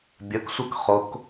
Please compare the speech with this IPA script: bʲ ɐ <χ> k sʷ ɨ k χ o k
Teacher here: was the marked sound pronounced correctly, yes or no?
no